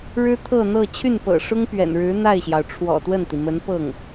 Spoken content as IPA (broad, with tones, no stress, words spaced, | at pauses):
ɻɻ̩˥t̪ʰɤ˥˧n̪ɤ˥˧ t͡ɕʰy˥˩npɤ̰˨˩ʂʊ˥ŋ pɥɛ̰˨˩nɻɻ̩˧˥n̪a˥˩ɪ̯ɕjɑ˩ʊ̯ ʈ͡ʂʰwɔ̰˨˩t̪wə˥˩nt̪i˩mə˧˥n pɤ˥˩ŋ